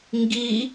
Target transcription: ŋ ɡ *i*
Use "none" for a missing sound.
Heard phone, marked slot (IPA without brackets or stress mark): i